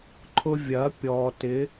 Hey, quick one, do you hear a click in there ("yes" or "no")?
yes